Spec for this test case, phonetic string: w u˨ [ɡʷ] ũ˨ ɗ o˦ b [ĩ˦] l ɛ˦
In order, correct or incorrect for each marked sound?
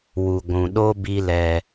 correct, incorrect

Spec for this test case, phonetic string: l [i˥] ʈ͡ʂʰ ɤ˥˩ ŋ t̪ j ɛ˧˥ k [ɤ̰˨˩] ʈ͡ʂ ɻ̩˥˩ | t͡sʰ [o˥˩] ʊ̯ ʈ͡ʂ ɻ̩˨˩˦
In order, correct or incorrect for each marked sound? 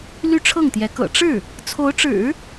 incorrect, correct, incorrect

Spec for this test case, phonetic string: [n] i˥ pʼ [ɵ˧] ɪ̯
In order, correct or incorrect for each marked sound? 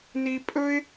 correct, incorrect

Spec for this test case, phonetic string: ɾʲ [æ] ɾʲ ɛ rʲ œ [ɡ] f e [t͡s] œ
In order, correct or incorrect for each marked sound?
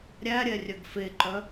correct, correct, incorrect

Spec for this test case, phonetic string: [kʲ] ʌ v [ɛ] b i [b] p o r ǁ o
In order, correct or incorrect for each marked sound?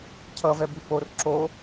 incorrect, correct, incorrect

